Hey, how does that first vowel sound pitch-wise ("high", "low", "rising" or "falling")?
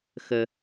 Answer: high